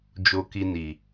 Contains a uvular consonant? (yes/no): no